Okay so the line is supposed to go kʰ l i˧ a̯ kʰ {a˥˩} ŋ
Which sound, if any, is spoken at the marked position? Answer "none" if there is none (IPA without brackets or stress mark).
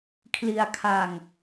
a˧